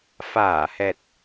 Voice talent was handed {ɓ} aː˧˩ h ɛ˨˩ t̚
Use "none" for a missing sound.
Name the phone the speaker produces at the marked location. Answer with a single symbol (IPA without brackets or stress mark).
f